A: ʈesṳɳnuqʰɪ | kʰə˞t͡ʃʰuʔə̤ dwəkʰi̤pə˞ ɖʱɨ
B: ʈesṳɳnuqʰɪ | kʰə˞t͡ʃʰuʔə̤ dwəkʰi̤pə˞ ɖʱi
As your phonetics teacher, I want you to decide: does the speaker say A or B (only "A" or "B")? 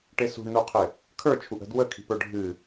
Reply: A